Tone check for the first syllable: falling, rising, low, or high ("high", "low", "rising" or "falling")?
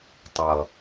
low